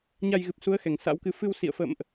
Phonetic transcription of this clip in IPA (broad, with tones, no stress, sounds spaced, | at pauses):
ɲ a˧ j ɣ ɨ˨˩ p̚ s u˨˦ ə̯ x ɛ˨˩ ŋ s a̰˧˥ w k ɨ˨˦ f ɨ˧ w s ḭ˧˨ ə̯ f ə̰˧˨ m ʔ